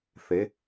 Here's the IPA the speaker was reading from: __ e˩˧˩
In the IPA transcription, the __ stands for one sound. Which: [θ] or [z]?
θ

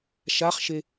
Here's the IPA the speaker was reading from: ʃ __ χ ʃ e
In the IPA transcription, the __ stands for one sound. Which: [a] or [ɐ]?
a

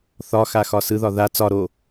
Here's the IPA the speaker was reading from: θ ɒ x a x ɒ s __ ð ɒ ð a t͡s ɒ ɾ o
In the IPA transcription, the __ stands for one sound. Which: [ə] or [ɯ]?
ɯ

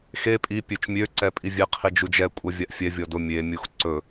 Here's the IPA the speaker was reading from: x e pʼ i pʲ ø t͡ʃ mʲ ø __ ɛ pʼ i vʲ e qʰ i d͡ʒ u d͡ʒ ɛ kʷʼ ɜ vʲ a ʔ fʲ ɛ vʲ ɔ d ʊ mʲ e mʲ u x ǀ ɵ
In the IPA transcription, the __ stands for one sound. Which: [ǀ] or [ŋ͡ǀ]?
ǀ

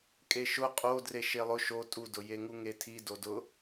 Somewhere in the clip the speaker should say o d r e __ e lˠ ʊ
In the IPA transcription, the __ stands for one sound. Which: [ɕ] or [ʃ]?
ʃ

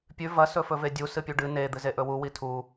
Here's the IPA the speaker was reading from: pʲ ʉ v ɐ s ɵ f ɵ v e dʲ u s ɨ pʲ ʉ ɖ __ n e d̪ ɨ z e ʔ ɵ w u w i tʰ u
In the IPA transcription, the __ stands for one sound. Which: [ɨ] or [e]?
ɨ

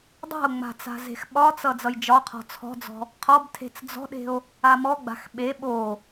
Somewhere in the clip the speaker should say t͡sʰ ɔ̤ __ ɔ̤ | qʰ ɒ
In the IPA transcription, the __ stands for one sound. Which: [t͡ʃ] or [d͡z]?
d͡z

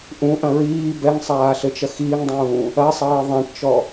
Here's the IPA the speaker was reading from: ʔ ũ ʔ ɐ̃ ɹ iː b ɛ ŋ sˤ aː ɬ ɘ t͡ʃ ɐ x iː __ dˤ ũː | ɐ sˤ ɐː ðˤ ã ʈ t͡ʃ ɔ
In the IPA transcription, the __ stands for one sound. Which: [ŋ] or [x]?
ŋ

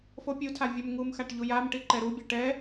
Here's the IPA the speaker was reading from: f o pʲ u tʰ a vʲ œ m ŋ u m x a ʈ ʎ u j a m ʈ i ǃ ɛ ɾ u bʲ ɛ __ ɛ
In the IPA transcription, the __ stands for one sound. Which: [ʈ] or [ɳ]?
ʈ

